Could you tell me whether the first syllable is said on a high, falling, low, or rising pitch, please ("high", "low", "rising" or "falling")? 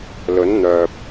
rising